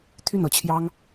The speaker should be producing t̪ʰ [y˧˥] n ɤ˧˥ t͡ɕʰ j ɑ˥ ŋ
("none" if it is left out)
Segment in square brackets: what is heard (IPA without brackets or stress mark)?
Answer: y˥˩